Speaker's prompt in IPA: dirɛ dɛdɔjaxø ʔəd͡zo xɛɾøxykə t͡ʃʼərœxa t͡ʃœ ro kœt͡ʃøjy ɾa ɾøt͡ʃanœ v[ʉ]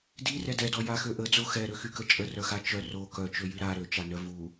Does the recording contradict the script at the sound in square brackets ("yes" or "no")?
yes